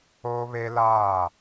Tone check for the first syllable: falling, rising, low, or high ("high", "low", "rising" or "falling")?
high